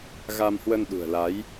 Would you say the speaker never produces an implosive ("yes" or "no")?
no